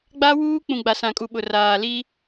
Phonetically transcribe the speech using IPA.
ɡ͡b a˦ w uː˦ k͡p ũ˨ ɡ͡b a˨ s ã˨ kʼ u˨ ɓ ʊ˨ r aː˨ l i˦

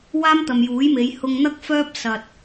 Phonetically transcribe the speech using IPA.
w aː˥ m t̪ ɐ˨ m j uː˨˥ j m e˨˧ j h ʊ˧ ŋ n̪ ɐ˥ k̚ f œː˥ p̚ s ɐ˨ t̚

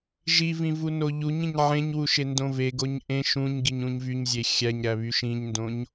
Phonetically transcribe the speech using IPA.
ʒ i v ĩ v u n o ʎ u ɲ ĩ ɲ ʕ ẽ ɲ w u ʃ e n d õ v e ɡ o ɲ ʔ ẽ ʃ ũ ɲ ɡ i ɲ ũ ɲ v y ɲ zʲ e xʲ æ ɲ ɾ æ β y ʃ ĩ ɲ n d õ ɲ

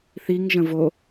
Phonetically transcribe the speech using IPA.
θ i ŋ ʒ ə̃ v o

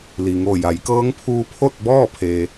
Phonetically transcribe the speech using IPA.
l i˩ ŋ o˧˩ j a˩˧ j k ɤː˧˥ ŋ pʰ uː˧ pʰ o˥˨ t̚ b ɔː˥˨ pʰ e˩

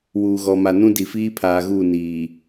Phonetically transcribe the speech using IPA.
w uː˨ ɣ ɔ˨ m a˨ n ũ˦ d i˨ f iː˦ pʰ aː˨ ɣ uː˦˨ n iː˨

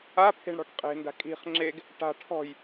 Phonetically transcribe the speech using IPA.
a pʰ e̤ ɳ ɽ ɔ̤ ʈ qʼ e̤ n d a̤ kʼ i̤ χ ŋ͡ǁ e ɡ | ʈ a̤ ʈʰ ɔ̤ j

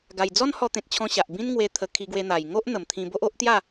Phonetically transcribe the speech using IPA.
ɡ a˨˩ j d͡z ɔ˦ n h ɔ˧ t̪ ẽ˨ t̚ t͡ɕʰ ɔ̃˧ ɕ a˨ ʔ b ĩ˦ n ŋ w e˧ t̪ʰ ə˧ kʰ i˧ ɡ w e˧ n̪ a˨˩ j ŋ o˦ ʔ n̪ ə˨˩ m t̪ʰ ĩ˧ b o˦ ʔ o˦ ʔ t̪ j a˥˧

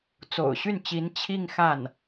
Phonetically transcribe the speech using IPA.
t͡s o̰˨˩ ʊ̯ ɕ y˥˩ n t͡ɕ i˧˥ n t͡ɕʰ i˥˧ ŋ x a˥˩ n

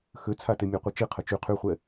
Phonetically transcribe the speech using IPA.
x ø t͡sʰ a t e mʲ a qʷ i t͡ʃ i qʰ ə t͡ʃ y qʰ y χʷ ɛ

